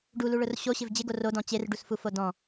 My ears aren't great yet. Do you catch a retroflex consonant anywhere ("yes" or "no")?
yes